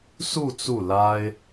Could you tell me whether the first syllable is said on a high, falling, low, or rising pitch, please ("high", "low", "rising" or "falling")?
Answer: falling